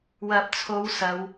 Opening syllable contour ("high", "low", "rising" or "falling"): low